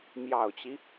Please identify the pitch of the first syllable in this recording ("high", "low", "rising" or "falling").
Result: low